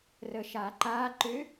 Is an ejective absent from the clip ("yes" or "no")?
yes